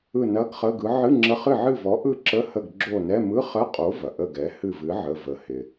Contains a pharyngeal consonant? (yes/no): yes